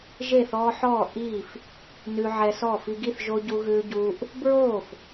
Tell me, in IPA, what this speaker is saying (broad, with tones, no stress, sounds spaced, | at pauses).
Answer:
ʒ e˥˨ θ ɔː˦ ħ ɔː˥˨ ʔ iː˥˨ f | n ʉ˦ ʕ ɛ˦ s ɔː˥˨ f i˦ ɡ i˥˨ θ ʒ o˦ ɟ u˦ ɣ ʉː˦ ɟ uː˦ ʔ | b ɹ oː˥˨ f